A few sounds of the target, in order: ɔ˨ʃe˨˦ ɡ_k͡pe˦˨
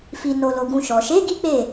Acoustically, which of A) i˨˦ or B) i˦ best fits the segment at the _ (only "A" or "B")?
B